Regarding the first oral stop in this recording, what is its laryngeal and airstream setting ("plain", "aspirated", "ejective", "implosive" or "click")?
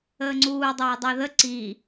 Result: click